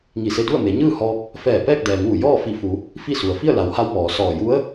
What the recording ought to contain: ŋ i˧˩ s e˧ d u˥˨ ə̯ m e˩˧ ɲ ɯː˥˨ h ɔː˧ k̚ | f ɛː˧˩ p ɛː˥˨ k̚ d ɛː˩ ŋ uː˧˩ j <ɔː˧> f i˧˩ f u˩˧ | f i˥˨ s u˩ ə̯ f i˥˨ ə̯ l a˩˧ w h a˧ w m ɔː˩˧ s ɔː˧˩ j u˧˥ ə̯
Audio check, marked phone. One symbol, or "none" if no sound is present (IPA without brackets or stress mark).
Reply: ɔː˥˨